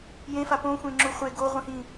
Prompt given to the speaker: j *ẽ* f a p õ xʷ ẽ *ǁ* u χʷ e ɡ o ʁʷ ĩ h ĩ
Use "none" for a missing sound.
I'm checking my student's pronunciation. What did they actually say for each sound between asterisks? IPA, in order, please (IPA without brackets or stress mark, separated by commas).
ẽ, ŋ͡ǁ